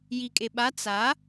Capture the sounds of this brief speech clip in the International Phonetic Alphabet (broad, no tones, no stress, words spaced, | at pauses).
jikʼeɓa t͡sa